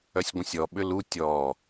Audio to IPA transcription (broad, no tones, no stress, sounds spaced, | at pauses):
œ sʲ ɡʷ ə̃ sʲ ɔ ɓ ʏ l u tʲ ɔ